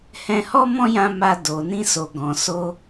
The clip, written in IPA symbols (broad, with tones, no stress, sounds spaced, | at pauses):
h ɛ̃˧ h ɔ˦ m ɔ̃˦ j ã˧ m a˧ d o˨ n ĩ˧ s o˨ ɡ ɔ̃˨ s o˧